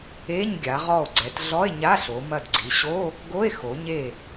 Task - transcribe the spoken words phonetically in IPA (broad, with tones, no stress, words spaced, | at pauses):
e˧˥˧ɲ ɡʲa˩˧ʁɔ˧˩o̯ɡ͡ǀɛ˩˧t ɮɔ˧˥˧e̯ɲa˧˥˧ɬo˩˧mɐ˧˩d ɡ͡ǀi˩˧ɕo˧˥˧ | ɡo˧˥˧e̯ xo˩˧ɲe˧˩